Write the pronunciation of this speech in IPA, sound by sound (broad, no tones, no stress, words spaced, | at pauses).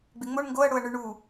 ɡ͡bɪŋ͡moɳ ŋɡoɐ̯ ɽoɐ̯ɳʉɳu